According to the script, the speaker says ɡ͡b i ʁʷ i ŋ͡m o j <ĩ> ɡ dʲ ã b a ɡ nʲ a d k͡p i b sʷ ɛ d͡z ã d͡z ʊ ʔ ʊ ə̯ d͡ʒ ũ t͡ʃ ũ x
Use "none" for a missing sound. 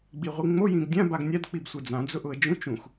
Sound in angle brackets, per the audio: ĩ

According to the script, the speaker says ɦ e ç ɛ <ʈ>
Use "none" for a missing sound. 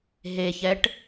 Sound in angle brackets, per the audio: ʈ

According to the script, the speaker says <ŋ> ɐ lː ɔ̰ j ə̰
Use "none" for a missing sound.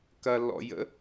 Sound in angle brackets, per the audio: k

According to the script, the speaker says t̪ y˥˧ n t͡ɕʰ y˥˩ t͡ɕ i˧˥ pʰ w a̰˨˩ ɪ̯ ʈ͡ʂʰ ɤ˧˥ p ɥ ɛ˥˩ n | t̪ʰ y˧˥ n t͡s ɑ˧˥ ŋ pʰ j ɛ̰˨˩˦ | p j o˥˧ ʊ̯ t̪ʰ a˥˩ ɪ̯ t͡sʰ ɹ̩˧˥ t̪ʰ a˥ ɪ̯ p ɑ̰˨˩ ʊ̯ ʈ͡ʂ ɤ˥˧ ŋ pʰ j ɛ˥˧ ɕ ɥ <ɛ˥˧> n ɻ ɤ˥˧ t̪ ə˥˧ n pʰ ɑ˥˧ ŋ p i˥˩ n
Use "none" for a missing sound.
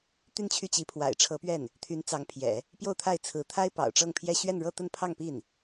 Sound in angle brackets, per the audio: ɛ˥˧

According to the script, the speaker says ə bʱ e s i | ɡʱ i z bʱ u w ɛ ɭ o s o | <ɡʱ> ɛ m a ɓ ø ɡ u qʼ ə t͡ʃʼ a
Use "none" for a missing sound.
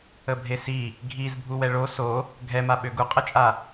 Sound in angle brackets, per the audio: ɡʱ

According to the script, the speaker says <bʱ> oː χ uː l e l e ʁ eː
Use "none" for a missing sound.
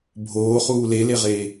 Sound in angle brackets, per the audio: bʱ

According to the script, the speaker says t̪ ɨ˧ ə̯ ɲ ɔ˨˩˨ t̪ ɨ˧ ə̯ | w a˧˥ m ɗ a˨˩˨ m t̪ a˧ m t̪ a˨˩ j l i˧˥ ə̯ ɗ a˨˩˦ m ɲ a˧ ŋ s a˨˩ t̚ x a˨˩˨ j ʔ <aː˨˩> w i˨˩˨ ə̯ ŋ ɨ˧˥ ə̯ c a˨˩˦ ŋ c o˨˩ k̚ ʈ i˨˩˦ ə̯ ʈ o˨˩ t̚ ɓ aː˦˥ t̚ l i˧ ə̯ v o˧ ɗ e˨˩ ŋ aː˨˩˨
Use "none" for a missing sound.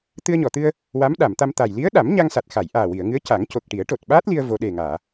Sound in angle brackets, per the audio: aː˨˩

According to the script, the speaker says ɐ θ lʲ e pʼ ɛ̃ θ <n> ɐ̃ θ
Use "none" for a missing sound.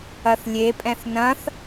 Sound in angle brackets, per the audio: n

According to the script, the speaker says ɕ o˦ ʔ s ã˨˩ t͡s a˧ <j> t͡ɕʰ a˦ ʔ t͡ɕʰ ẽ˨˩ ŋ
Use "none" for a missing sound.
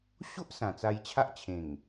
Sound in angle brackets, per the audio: j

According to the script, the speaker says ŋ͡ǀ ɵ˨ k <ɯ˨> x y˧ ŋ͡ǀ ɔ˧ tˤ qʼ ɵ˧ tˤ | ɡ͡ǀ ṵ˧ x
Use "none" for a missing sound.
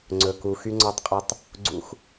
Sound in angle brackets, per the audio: u˨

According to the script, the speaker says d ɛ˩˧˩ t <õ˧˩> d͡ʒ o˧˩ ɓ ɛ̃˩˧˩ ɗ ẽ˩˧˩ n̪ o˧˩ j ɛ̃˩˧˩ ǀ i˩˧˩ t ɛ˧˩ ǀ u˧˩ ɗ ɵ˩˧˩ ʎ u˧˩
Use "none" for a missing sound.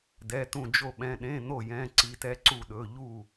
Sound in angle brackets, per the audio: ũ˧˩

